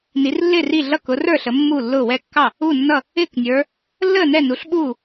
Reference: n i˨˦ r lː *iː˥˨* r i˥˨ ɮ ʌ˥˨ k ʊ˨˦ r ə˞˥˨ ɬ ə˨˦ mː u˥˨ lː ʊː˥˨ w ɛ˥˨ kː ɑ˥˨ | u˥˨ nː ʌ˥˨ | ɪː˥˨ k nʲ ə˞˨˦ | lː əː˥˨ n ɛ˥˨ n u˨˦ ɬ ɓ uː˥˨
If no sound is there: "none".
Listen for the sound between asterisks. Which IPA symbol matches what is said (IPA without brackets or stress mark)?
ɪː˥˨